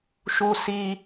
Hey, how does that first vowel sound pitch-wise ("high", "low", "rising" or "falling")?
high